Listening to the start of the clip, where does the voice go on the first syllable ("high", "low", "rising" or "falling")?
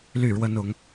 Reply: falling